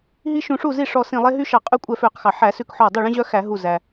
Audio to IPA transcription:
ɦ i˦ ʃ ũ˧˩˧ ʂ u˥˩ z i˥˩ ʂ ɔ˧˩ s ĩ˧˩ lˠ e˦ ɦ y˦ ʃ ɑ˧˩˧ qʼ y˥˩ kʷʼ ɛ˧˩ f ø˧˩˧ q x ɑ˩ ħ æ˧˩˧ s ʉ˧˩ k ħ ɔ˧˩ dˤ ɵ˥˩ ɭ ĩ˦ ʑ œ˦ x æ˧˩˧ ɦ u˧˩ z æ˩

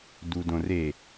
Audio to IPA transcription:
d u d õ r e

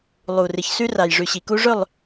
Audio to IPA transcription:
lˠ u˨ r ɨ˨ ç s ʉ˦ r a˨ j ʐ ʉ˨ ɕ i˨ k u˦ ʐ ɵ˦˨ lˠ

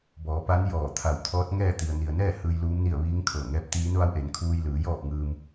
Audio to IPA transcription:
b ɔː˩˧ p a˧˥ n j ɔː˧˩ t̪ʰ a˧˩ w t̪ʰ ɔː˧˥ t̚ ŋ ɛː˥˨ t̪ i˩ ə̯ n i˩ ə̯ n ɛː˥˨ h ɯː˧ j l uː˧˥ m n i˥˨ ə̯ ʋ iː˧˥ ŋ kʰ ɤː˧˩ ŋ ɛː˧˥ p̚ t̪ iː˧˥ n ʋ a˧˥ w ʔ e˩˧ n kʰ uː˧ j l ɯː˩˧ j ɔː˥˨ p̚ ŋ ɯː˧ m

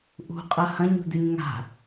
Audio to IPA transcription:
ʔ ṳ qʼ ɐ h ɐ̃ ɲ ṳ d ʉ ɲ ŋ a̤

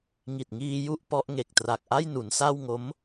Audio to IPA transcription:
ŋ i˨˩ t̚ ŋ iː˧ j u˥˩ ʔ p ɔ˦˥ ʔ ŋ e˨˩ k̚ t r a˨˩ k̚ ʔ a˥˩ j n u˩˦ n s a˥˩ w ŋ o˦˥ m

